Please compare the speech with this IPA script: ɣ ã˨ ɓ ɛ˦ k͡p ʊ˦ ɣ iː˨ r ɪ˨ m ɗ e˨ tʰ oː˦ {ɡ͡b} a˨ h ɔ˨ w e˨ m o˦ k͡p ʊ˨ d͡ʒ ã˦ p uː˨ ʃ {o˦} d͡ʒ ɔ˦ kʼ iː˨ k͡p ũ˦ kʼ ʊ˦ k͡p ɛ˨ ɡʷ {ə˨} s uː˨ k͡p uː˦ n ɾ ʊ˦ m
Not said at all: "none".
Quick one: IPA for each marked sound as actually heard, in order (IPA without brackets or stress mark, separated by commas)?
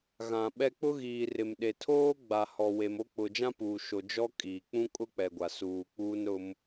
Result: ɡ͡b, o˨, a˨